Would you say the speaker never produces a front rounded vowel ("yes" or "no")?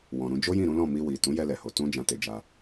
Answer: yes